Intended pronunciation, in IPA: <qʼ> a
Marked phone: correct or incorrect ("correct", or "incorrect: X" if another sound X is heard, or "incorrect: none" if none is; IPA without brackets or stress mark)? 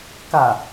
incorrect: k